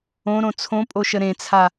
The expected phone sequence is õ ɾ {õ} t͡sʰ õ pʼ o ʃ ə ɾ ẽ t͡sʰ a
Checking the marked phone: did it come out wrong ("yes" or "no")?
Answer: no